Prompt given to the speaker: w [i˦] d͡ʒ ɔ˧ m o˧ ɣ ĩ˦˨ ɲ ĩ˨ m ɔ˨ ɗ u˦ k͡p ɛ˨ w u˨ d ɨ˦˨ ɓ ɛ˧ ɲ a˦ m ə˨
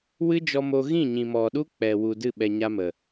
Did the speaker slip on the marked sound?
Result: yes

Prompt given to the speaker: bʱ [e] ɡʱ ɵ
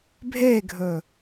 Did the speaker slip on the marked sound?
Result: no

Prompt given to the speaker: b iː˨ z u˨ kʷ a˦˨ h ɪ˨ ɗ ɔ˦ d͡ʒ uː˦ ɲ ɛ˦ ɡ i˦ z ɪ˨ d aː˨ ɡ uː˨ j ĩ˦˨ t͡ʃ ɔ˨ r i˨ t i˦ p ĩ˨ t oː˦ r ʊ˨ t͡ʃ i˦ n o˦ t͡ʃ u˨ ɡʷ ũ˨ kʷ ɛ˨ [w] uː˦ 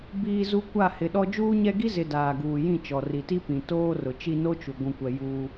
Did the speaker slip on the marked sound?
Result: yes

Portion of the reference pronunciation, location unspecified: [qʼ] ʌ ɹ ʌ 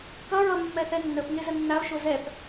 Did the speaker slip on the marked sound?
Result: yes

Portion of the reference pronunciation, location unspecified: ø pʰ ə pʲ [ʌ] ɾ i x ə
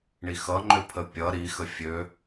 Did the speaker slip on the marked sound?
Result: no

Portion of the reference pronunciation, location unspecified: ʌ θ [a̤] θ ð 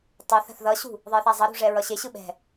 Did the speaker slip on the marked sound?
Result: no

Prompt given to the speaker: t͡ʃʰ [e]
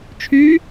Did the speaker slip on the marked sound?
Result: yes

